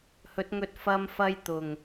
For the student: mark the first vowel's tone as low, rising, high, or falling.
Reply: rising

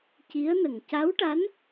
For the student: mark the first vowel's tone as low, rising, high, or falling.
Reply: rising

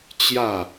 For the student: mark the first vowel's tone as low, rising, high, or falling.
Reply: falling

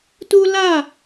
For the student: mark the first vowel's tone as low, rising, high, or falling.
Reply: high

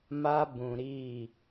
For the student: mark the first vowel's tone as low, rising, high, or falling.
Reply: high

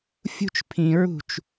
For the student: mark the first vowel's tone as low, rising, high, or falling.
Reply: high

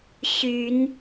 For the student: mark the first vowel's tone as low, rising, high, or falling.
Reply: rising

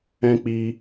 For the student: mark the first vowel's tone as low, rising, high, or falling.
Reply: high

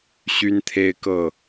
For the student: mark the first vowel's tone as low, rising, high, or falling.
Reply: high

